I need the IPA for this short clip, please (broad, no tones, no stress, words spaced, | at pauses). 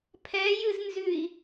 pʰɛ jɨznzʉi̯